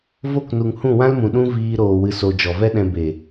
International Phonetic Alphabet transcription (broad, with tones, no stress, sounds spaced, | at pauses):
v o˦˨ k n u˨ ŋ h ũ˦˨ w ã˦ l m ũ˨ ɗ ũ˦ v iː˧ ɾ oː˨ w ɨ˨ s o˨ d͡ʒ ɔ˨ v ɛ˦ ɗ ɛ̃˧ b e˨